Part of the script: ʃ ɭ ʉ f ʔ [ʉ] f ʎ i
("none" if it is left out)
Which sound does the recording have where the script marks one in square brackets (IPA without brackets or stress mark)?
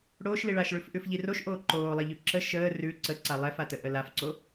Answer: ʉ